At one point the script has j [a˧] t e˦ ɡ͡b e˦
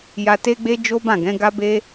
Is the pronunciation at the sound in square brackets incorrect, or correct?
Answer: correct